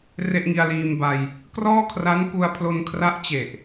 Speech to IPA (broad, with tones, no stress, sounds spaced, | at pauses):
r e˥˩ ʔ ŋ i˧ a̯ l iː˧ m b a˧ j | k r ɔː˥˩ kʰ r a˦˥ n k u˧ a̯ pʰ l o˧ n kʰ r a˦˥ ʔ t͡ɕ e˨˩ ʔ